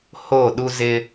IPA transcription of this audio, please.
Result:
h o˦˨ ɗ u˦ z ɪ˦

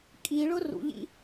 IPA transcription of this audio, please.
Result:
kʼ i ɭ ʊ r ṵ ʎ ḭ

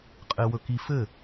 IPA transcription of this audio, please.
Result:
qʼ ɪ w ɵ k i f ɘ

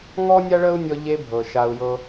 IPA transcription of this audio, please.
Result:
ŋ ɔ˦ nʲ a˦ ɭ ə˦ u̯ nʲ ɔ˧ ʎ e˧ bʱ ɤ˨ ʃ a˧ u̯ j ɤ˦

